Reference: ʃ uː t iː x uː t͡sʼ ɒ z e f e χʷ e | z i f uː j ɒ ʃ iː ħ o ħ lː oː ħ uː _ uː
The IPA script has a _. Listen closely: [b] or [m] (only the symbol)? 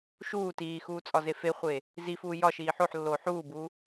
b